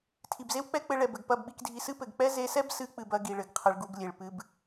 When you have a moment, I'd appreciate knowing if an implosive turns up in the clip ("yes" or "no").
yes